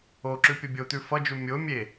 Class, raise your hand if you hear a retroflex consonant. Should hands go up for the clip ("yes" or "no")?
no